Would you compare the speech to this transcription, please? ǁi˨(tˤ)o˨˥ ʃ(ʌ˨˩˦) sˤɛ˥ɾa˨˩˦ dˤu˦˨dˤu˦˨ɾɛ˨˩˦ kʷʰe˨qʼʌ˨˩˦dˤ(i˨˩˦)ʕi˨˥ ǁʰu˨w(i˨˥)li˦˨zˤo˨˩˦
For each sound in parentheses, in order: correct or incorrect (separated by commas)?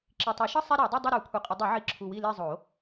correct, incorrect, correct, incorrect